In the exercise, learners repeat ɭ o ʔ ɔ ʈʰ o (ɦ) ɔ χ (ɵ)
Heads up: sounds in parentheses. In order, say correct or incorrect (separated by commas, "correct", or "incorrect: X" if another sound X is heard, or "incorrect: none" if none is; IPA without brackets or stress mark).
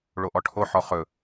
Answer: incorrect: ħ, correct